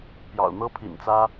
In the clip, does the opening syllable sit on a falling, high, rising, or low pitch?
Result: low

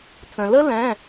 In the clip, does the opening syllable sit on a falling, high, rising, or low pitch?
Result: low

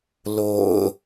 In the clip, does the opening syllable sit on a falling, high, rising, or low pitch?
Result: low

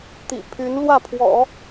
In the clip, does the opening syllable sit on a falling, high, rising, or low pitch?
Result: low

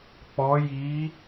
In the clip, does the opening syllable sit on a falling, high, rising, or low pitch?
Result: rising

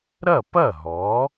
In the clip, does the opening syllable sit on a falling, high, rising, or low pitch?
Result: falling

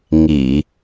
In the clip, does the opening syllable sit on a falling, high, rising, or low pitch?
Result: low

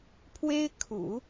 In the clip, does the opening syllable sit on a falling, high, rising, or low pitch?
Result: high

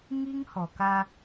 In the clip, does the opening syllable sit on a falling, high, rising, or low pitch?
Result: high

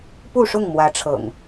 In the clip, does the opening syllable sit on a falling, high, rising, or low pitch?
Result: falling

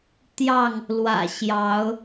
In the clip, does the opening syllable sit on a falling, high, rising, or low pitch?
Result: falling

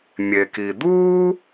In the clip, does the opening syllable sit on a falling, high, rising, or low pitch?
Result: low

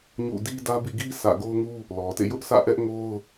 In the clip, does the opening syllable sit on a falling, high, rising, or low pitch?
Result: falling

